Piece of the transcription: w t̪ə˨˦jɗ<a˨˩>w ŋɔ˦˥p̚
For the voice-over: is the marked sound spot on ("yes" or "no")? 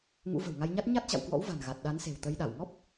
no